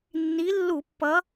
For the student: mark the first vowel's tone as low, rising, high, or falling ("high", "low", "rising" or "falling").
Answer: rising